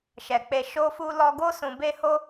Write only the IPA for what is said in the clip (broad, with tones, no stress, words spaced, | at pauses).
ʃɛ˨k͡pe˧ ʃo˧fu˧ lɔ˧ɡo˦ sũ˧ be˦ ho˦